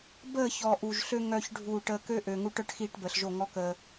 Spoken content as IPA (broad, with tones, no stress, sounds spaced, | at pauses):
b əː˦˨ ç ɔ˨ ʔ u˨ ʒ ɬ ø˧ ŋ œ˨ ç ɖʱ uː˨ ʈ əː˧ k ø˦ ʔ øː˨ ŋ u˧ ʈ œ˦ ʈ x iː˧ ʈ b əː˨ ɬ ʒ o˦˨ ŋ ɔ˦ k əː˧